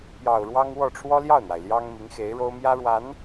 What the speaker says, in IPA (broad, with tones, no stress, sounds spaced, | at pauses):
p j ɑ˨˩ ʊ̯ ɻ w ɑ˥ ŋ w ɔ˥˩ ʈ͡ʂʰ w ɔ˥ l j ɑ˥˩ ʊ̯ n̪ w a˩ ɪ̯ l j ɑ˥ ŋ m i˧˥ ŋ x e˧˥ ɪ̯ ɻ o˥ ʊ̯ m j ä˥ ɻ w a˧˥ n